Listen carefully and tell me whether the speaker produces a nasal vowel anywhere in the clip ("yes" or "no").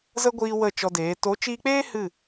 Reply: no